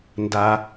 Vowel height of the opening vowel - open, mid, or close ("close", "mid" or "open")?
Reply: open